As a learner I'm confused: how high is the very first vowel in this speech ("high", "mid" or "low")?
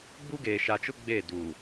high